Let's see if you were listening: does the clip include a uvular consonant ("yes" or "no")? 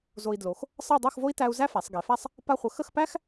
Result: yes